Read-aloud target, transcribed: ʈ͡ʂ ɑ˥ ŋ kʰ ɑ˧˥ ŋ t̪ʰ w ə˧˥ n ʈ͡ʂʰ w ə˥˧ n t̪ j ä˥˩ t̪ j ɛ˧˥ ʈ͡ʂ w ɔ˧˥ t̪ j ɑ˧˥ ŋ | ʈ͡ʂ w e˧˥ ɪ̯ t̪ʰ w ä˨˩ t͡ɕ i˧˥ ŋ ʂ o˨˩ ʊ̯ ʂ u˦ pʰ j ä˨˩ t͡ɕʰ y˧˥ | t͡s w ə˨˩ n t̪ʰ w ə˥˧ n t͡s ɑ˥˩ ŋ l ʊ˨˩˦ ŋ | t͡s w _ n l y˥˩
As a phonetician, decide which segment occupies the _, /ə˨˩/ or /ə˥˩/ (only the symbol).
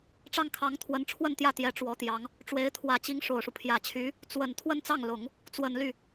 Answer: ə˨˩